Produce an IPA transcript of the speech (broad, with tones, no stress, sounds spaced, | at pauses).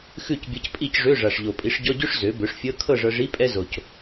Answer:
x ʉ˥˨ c bʲ ɤ˧ c pʼ i˥˨ c ʐ ø˧˥˧ ʐ a˨˩ ʂ ʎ o˨˩ pʼ i˩˥ ʂ ɟ ɔ˧˥˧ ɟ ø˥ ʂ z ø˩˥ b ø˩˥ ʂ fʲ ɤ˧˥˧ kʰ ɤ˥˨ ʐ ɤ˧ ʐ i˧˥˧ pʼ ɛ˥ z o˨˩ c